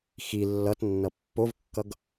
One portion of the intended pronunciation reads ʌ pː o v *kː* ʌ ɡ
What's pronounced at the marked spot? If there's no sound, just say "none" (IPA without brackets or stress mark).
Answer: kː